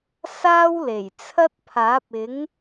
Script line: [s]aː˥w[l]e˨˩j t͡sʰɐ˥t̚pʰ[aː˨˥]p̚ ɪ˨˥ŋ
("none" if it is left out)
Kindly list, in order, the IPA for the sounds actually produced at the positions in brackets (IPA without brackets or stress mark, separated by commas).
s, l, aː˨˥